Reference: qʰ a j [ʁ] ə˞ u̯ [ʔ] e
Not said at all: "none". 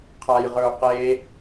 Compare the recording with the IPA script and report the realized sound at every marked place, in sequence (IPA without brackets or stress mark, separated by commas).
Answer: ʁ, q